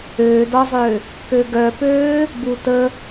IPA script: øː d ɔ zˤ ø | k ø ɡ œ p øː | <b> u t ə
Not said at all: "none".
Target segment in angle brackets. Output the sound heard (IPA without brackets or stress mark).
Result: b